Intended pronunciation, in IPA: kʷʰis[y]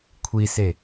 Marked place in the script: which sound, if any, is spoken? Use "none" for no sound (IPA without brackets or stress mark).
e